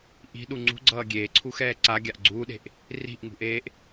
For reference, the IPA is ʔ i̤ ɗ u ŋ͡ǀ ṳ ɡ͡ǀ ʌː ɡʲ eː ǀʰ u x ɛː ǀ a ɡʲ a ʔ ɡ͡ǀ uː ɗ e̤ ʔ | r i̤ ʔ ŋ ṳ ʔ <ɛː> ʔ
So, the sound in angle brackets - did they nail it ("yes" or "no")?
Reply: no